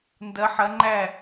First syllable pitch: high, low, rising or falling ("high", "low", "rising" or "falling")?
rising